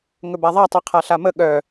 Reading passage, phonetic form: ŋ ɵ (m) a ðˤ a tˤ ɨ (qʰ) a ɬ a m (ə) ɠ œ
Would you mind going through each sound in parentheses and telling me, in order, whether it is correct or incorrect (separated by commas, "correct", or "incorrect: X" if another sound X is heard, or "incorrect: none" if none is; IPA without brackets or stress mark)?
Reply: incorrect: b, correct, correct